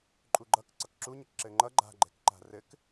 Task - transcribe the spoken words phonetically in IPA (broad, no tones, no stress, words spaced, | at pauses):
ǃʼuɡ͡ǃʌk ǀʌkǁuɲʌk ǁɘŋ͡ǃʌ ɡ͡ǃa̤ɡ͡ǃɛ̤kǃa̤ rɘk